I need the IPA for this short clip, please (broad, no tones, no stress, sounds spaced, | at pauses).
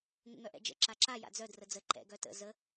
ŋ ə̰ ŋ œ ʔ ɛ̰ d͡ʒ ə̰ ǁ a ǁ a j a̰ d͡z œ d r ə d͡z ə ǃ ɛ̰ ɡ œ t ə̰ z ə